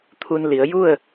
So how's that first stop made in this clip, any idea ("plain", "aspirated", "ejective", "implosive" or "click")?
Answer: aspirated